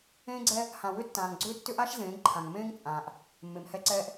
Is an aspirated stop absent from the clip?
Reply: no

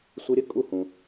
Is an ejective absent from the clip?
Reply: no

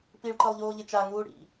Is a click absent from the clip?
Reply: no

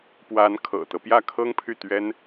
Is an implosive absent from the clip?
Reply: yes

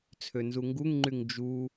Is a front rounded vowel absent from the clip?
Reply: no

